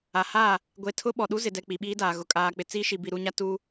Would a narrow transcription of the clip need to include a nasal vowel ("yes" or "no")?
no